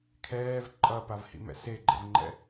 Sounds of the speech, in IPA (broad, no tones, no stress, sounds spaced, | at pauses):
kʰ ɛː v ǃʼ ʌ p a v h ḭ m ɛ̰ s e ɡ͡ǃ ɛ̰ v ŋ͡ǃ ɛ̰